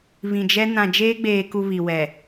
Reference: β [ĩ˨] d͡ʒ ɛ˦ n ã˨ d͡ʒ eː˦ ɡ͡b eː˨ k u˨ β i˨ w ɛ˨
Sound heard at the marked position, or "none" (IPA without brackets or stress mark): ĩ˨